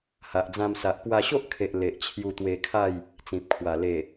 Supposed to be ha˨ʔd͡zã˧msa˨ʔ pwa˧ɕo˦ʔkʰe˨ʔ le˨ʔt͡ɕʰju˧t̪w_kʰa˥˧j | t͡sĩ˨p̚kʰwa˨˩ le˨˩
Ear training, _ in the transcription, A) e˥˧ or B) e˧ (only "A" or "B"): B